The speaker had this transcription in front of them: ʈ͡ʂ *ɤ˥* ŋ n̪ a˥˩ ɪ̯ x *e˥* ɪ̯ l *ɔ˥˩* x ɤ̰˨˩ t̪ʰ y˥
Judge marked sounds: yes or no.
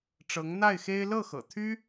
no, yes, no

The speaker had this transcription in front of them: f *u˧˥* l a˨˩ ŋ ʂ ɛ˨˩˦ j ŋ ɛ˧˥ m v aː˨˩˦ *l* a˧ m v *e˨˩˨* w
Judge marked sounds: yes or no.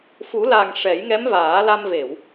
no, yes, yes

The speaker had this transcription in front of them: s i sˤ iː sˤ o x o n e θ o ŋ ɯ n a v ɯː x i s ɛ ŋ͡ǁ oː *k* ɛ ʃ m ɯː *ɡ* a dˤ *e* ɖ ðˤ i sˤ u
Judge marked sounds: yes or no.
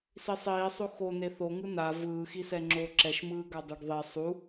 no, yes, yes

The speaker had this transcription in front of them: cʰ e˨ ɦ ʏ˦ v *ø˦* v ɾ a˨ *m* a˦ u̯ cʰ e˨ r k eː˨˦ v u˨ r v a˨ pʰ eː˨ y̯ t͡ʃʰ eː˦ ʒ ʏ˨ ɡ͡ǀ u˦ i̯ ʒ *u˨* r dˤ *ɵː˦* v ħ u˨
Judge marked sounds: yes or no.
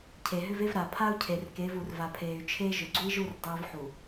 no, no, no, yes

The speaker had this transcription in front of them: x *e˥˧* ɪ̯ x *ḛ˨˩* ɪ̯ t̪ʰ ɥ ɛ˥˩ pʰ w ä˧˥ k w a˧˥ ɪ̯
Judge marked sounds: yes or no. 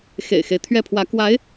no, no

